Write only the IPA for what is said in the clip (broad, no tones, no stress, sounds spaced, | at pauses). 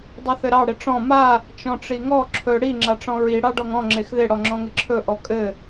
dˤ i θ ɘ ɾ ɑ ɽ ɪ ʈ͡ʂ ɔ̃ m a | t͡ʃ ɔ̃ ʈ͡ʂ i ŋ ɔ ǁʰ ɵ ɽ i ŋ͡ǁ a ʈ͡ʂ ɔ̃ ɹ i ɽ ɑ ɖ ɔ ŋ ɔ̃ ŋ͡ǁ e x ð ɪ ɽ ɔ ŋ͡ǁ ɔ̃ ŋ ɪ ǁʰ ɵ ʔ ɔ kʼ ɘ